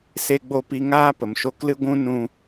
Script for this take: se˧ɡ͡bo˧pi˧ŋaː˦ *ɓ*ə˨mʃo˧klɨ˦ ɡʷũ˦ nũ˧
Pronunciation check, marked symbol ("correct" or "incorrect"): incorrect